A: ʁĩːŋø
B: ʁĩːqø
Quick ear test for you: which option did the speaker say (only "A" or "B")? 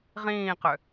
B